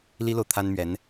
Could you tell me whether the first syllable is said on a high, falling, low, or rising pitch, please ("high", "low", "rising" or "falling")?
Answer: high